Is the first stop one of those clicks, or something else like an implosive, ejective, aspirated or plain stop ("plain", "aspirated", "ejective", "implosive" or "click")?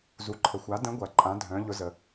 click